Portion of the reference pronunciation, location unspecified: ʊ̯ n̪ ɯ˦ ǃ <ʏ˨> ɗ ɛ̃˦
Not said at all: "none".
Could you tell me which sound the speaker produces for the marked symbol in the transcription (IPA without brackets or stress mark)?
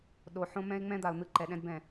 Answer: ɛ˨